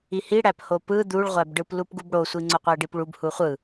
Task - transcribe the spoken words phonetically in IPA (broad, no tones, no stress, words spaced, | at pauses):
ihi ɽæphopɯ d̪uɭʁʷæbɖɯp lupɡubɽosʷi ŋ͡ǀoqʷæɖipɭub huχʷɯ